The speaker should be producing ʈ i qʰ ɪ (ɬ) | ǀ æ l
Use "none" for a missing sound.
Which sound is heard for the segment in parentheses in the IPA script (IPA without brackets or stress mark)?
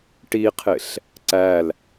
ɬ